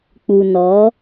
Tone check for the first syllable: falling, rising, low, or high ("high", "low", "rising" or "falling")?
low